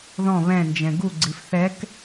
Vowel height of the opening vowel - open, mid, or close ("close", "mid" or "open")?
mid